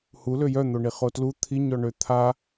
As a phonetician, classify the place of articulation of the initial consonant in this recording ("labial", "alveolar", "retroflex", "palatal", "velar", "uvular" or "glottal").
glottal